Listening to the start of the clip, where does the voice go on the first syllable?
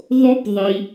high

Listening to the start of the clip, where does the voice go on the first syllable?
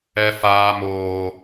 high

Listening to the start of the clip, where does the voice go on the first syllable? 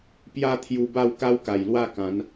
falling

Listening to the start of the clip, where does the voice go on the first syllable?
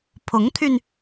rising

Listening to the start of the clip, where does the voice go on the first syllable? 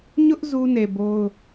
high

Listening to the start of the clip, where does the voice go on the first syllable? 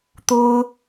high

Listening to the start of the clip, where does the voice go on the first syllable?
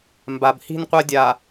low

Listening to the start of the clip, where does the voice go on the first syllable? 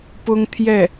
high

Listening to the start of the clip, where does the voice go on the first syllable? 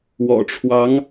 low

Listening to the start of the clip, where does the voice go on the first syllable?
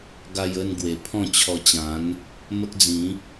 high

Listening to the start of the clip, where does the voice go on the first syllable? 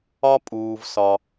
high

